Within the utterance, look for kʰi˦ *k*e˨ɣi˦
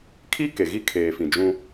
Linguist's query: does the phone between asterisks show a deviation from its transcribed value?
no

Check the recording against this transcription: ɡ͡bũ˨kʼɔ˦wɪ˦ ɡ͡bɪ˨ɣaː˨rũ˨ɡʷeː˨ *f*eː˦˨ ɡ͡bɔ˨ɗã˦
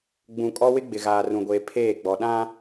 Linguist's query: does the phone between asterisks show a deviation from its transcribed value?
yes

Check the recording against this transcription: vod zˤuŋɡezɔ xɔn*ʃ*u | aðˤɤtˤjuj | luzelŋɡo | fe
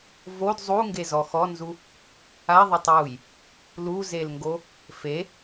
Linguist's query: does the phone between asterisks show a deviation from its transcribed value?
yes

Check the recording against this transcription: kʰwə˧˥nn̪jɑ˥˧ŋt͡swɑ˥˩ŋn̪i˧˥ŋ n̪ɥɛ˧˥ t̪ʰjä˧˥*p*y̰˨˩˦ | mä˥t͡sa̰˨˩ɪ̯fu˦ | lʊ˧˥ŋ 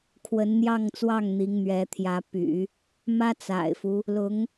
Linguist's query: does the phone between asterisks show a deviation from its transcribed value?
no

